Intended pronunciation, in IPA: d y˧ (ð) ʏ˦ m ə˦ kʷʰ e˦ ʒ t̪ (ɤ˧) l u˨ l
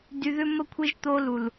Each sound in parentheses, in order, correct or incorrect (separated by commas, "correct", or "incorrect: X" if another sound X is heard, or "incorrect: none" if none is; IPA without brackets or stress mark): correct, incorrect: o˧